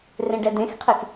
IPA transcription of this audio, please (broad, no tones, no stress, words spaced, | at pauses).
rẽɖɛdẽxqʰix